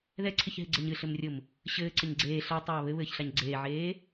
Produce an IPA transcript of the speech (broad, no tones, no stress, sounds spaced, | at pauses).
ð ɛ ǀʰ ɪ ç ɦ ɪ ɡ͡ǀ ɘ ɲ ɨ ɬ ɘ m rʲ ʊ m | ɕ ɘː ǀ ɘ ɲ ɡ͡ǀ eː ɬ a tˤ aː β ɘ β ɘː ç ɬ a ɲ ɡ͡ǀ eː ʕ eː